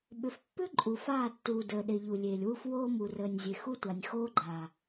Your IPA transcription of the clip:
ɓ ʏ˨ f pː ʏ˦ ǃʼ u˨ f aː˦˨ tː uː˨ d əː˨ ɗ e˨ ʎ u˨ lʲ eː˨ lʲ w u˦ f w oː˦ m u˨ r əː˨ nʲ zʲ e˨ x u˦ tʷ a˨ nʲ x oː˦ ɡ͡ǃ aː˨

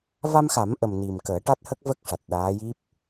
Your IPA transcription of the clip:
v a˧ m x a˨˩˦ m ʔ ə˨˩ m n i˨˩ m k əː˨˩˦ ʈ a˦˥ t̚ h ə˦˥ k̚ v ə˦˥ k̚ ʂ a˨˩ t̚ ɗ aː˧˥ j i˦˥ p̚

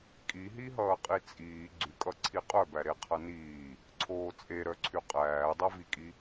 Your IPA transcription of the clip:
kʼ i ɦ i ɦ ʌː qʼ i t͡sʼ iː ɡ͡ǀ y kʼ ʌ ǀʰ i qʼ œ b æ ɾ e qʰ ʌ n iː | ǀʰ oː t͡sʼ e ɾ œ ǀʰ y qʼ æː dˤ ʌ v i kʼ i

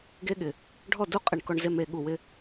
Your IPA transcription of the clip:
ɡ e˧ ɠ ɪ˨ | ɖʱ ɔ˦˨ d u˦ qʼ ɪ˨ ɳ k ɔ˨ ɳ z e˨ m e˨ ɠ u˨ w ɪ˧

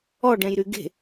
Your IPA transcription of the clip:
ɔ ɖ ɛ̃ j ɾ y ɡ e̤

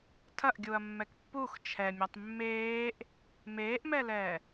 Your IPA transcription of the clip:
tʰ ɐ ʔ ɡʲ u ɐ̯ mː ɛ k pː u x t͡ʃʰ ɛ mʲ a tˤ mː eː ʔ | m eː ʔ m ɛ l ɛː

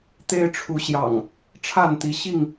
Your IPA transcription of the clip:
t̪ e˦ ɪ̯ ʈ͡ʂʰ u˨˦ ɕ j ɑ̰˨˩ ŋ | ʈ͡ʂʰ a˥˨ n t̪ i˨˦ ɕ i˥˨ ŋ

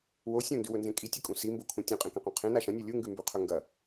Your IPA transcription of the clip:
w o sʲ õ n d ʉ w ɵ n z ẽ kʼ i tʲ ɵ kʼ ũ s i m b o kʰ ũ tʲ ũ qʼ ẽ k ɐ̃ q õ qʰ ẽ n a ʃ ɐ̃ nʲ o lʲ u ŋ ɡ ʉ m b ʉ qʰ ɵ ŋ ɡ ɐ

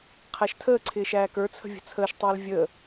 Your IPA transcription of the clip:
qʰ æ ʃ tʰ əː ǀʰ ɪː ʃ æː k ə˞ t͡sʰ ə̤ vʲ ə̤ t͡sʰ əː ʃ tˤ ɛː l vʲ əː

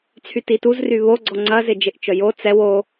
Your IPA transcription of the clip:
t͡sʰ y t i t u z r y β o ɡ͡ǀ ɔ ŋ͡ǀ ɐ z ɪ d͡ʒ ɪ ʔ t͡ʃ œ j o t͡s ɛ w o

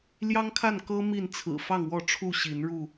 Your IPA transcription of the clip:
l j ɑ˦ ŋ kʰ a˥˨ n k ɤ˦ m i˥˨ n t͡sʰ ɹ̩˨˩ f ɑ˥˨ ŋ w ɔ˥˨ ʈ͡ʂʰ u˥˨ ɕ i˨˦ n ɻ u˥˨

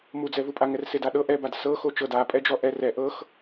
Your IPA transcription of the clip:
m u d͡z ɛ v u pʼ a ŋ ɛ r s e d a ɗ ɤ ʔ ɛ b a d s ɤ x o t͡ʃ ɤ d a pʼ ɛ d͡ʒ ɔ ʔ ɛ r ɛ ʔ ɤ x

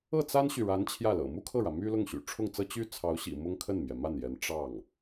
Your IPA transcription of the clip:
ɤ˥˩ t͡s a˥ n ɕ y˨ ɻ a˧˥ n t͡ɕʰ j ä˥˩ l ɤ̰˨˩ m u˥ kʰ ɤ˥˩ ɻ ä˩ m y˥ l ʊ˥˩ ŋ ɕ y̰˨˩ ʈ͡ʂʰ ʊ˥˩ ŋ t͡s ɤ˥ t͡ɕ y˥ t͡sʰ ɑ˧˥ ʊ̯ ɕ ḭ˨˩ m ʊ˥ ŋ kʰ ə˥˩ n m j ɛ˩ m a˥˩ n j ɛ˧˥ n ʈ͡ʂ ɑ˥˩ ŋ

